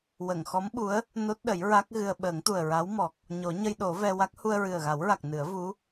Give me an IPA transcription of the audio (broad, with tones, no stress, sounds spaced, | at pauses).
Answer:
w ə˨˩˨ ŋ x ɔ˧˥ m ɓ u˧˥ ə̯ | n o˦˥ t̚ ɗ ə˨˩˦ j ɹ a˦˥ k̚ ɣ ɨ˧ ə̯ ɓ əː˨˩˦ ŋ t̪ u˨˩ ə̯ ɹ a˧˥ w m ɔ˨˩ k̚ | ɲ o˨˩˦ ɲ ə˧ j ɗ o˨˩˦ v ɛ˧ w a˦˥ k̚ h u˧ ə̯ ɹ ɨ˨˩ ə̯ ɣ a˨˩˦ w ɹ a˨˩ k̚ n ɨ˨˩˦ ə̯ v u˧˥